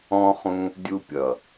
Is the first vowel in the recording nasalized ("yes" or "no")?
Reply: yes